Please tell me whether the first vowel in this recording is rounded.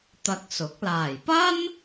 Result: no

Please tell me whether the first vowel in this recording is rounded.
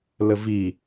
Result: no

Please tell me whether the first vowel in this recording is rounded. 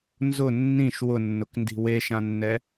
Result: yes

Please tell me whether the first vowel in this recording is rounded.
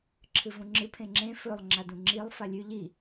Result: no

